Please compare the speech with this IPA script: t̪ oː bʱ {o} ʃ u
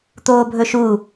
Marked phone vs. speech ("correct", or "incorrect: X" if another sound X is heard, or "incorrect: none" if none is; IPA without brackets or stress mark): incorrect: ɵ